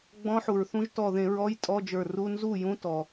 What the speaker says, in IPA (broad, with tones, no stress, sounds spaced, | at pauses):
ɡ͡b ɔ̃˧˥ ħ u˩ ɹ θ ũ˧˥ ʒ t ɔ˧˩ ð ẽ˧˩˧ ɹ ɔ˧˥˧ j tʼ ɔ˧˥˧ d͡ʒ ə˞˧˩ r u˧˥˧ n z u˥˩ j ũ˧˥ t ɔ˩